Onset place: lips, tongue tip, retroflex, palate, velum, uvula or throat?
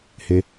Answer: throat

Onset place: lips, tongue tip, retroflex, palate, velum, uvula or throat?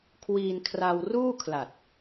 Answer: velum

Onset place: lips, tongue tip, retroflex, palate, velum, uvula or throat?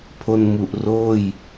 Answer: lips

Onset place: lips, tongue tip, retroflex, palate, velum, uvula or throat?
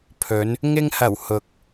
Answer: lips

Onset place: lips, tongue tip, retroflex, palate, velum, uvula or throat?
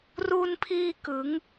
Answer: tongue tip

